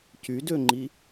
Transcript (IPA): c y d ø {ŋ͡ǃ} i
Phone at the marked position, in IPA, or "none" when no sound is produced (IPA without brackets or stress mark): ŋ͡ǃ